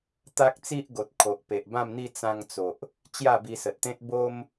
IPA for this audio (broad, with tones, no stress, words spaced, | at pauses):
t̪a˦k̚t͡si˦ʔ ɡo˨t̚ kʰo˨ʔpe˨ʔbã˥˧mn̪i˥˧ t͡sã˧ŋt͡so˨ʔ | t͡ɕja˥˧bi˧sə˨t̚t̪ẽ˦t̚ bo˦m